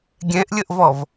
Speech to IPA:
ɡʲɛ̃ʔlʲəʔvɔv

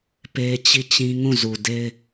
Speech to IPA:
pe˦t͡ɕi˦˨t͡ɕĩ˦ ŋũ˦˨zu˨de˦ɪ̯

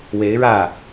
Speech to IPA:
we˧˥ɪ̯ɻä˥˩

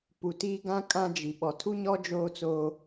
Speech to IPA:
pu˨ti˦ɡã˦ kʼã˦d͡ʒi˨ ɓɔ˨tʰu˦ɲɔ˦ d͡ʒoː˦t͡soː˦

